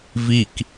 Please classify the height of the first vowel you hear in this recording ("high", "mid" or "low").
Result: high